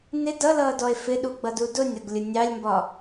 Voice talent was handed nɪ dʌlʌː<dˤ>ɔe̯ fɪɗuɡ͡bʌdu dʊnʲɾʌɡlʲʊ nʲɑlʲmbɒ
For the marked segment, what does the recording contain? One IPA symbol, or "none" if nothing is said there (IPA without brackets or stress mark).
d